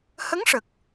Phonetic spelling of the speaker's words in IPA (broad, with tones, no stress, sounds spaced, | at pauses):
h ə˧˥ ŋ ʂ ə˨˩ k̚